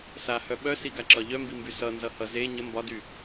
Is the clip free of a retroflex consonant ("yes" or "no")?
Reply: yes